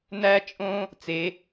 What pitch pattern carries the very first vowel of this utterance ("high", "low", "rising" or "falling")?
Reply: high